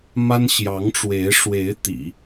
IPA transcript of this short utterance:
m a˥ n ɕ j ɑ˧˥ ŋ ʈ͡ʂ w e˧˥ ɪ̯ ʂ w e˧˥ ɪ̯ t̪ ḭ˨˩˦

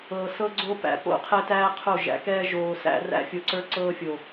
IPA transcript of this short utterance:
ɤ˨ s ɤ˦ ɡ͡ǀ o˦ p æ̰˨ p o̰˦ qʰ ɛ˦ t æː˦ qʰ o˦˨ ʒ æ̰˨ k ɛː˦ ʒ oː˨ s æ̰˦ r æ̰˦ fʲ o˨ ǀ ə˞˦ ǀ ɤː˦ fʲ o˨

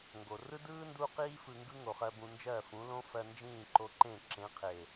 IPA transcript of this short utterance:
ŋ ɡ o˨ r ɯ˦ d ɯː˦ n d u˦ q iː˦ f ɯ˧ ŋ ɡ ɯ˦ ŋ o˨ χ ɜ˧ b ũ˧ n d͡ʒ ɜ˦˨ f ũ˨˦ l õ˦ f ɜ˧ n d͡ʒ ĩː˦˨ ǃ o˧ ǃ ẽ˦˨ ǁ ẽ˨˦ qʰ e˨

